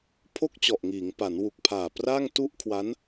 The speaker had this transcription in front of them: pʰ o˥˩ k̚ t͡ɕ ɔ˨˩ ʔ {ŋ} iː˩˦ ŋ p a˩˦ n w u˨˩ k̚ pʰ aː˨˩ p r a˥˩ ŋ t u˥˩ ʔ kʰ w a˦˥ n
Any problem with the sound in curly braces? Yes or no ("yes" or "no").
no